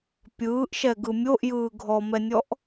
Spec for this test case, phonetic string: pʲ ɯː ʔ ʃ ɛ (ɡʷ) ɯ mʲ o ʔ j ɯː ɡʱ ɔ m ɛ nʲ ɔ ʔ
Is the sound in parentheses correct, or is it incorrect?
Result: incorrect: ɡ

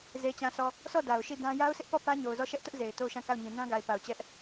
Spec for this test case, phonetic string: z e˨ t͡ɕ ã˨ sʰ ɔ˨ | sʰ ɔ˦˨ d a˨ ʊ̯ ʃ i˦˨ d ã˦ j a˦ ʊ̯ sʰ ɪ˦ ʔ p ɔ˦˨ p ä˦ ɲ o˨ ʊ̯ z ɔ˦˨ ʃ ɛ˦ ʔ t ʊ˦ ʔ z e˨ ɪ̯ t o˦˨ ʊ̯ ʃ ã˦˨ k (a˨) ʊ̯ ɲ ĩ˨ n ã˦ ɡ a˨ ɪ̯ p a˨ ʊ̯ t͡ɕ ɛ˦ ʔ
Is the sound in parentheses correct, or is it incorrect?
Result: incorrect: a˦˨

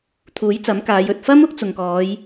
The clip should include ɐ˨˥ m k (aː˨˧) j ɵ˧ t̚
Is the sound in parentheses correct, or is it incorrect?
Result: correct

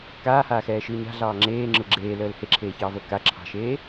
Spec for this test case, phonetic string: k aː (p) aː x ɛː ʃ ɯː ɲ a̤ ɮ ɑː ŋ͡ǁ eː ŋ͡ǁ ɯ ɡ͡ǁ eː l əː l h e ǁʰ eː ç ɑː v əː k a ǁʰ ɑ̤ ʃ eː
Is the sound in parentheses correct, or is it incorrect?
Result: incorrect: h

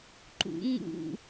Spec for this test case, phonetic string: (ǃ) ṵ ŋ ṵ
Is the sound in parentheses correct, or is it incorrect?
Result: correct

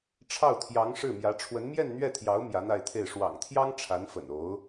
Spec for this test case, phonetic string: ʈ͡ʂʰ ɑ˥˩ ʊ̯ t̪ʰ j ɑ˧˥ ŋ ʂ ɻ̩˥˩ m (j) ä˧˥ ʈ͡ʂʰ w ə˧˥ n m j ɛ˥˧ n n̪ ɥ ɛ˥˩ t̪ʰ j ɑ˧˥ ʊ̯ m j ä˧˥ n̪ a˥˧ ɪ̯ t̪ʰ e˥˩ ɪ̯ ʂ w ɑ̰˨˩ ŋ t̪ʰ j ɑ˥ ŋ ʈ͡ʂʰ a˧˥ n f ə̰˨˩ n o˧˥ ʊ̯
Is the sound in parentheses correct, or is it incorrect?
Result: correct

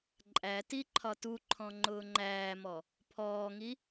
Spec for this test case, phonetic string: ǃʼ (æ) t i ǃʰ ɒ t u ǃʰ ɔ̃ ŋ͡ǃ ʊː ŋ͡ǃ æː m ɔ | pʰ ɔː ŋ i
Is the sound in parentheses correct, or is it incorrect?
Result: correct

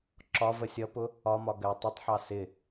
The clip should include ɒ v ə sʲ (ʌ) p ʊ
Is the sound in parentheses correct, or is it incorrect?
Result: correct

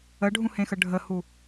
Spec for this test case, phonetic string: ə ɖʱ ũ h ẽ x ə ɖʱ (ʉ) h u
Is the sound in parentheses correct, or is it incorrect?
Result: incorrect: ə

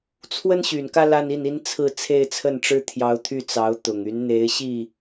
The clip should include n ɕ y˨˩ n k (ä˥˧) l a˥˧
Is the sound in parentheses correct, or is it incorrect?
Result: correct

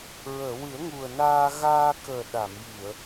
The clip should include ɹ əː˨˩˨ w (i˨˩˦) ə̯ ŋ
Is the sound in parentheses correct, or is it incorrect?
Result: incorrect: ɨ˨˩˦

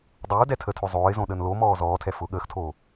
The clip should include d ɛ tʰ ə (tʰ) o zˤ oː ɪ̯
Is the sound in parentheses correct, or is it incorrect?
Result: correct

